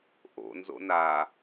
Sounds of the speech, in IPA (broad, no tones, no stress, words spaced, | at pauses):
ʔo̰nzo̰ na